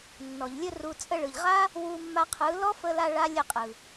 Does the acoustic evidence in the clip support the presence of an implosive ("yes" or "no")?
no